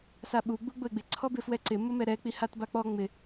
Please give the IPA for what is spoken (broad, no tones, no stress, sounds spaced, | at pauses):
s a ɓ u ɡ͡b u ɡ͡b ʊ ɪ̯ ɡ͡b ɪ ǀʰ ɔ b ɪ f w ɛ ǀ ɪ m ʊ m ɛ ɾ ɛ k͡p i h a t b a k͡p ɔ ŋ͡m ɪ